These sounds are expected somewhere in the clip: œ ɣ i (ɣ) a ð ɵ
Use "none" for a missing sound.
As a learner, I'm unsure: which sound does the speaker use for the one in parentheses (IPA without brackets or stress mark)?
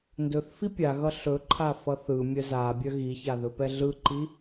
ç